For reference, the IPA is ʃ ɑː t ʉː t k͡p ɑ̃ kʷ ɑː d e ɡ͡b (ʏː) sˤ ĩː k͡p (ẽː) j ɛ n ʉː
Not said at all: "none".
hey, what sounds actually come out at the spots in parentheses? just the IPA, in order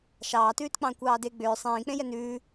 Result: ʏː, ẽ

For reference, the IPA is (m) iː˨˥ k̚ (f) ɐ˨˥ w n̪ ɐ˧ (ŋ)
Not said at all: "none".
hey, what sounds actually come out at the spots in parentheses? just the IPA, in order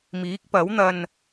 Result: m, p, n

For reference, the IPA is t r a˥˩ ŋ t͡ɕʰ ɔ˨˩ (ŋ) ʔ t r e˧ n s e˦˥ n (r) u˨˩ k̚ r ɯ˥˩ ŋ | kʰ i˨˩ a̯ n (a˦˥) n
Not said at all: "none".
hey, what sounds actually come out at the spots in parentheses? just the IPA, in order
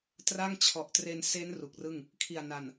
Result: none, r, a˨˩

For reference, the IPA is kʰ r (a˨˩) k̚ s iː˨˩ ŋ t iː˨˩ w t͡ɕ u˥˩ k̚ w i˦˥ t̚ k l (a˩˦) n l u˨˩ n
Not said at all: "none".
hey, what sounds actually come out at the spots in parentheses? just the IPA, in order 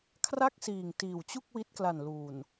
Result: a˥˩, a˨˩

